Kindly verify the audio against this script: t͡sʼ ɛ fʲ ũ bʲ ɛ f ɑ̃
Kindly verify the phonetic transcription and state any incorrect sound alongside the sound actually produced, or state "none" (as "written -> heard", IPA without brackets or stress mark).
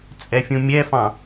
bʲ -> mʲ